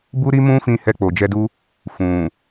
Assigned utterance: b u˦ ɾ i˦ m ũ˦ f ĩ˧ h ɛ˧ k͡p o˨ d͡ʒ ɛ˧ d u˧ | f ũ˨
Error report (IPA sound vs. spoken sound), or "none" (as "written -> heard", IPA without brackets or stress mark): none